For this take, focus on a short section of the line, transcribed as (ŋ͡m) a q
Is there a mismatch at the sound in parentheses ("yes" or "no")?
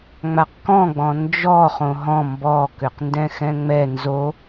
no